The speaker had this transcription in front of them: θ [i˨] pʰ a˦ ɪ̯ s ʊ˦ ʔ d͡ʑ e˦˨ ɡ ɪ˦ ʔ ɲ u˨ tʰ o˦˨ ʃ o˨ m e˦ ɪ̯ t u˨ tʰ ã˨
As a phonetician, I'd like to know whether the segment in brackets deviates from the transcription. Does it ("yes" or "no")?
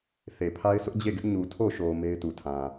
yes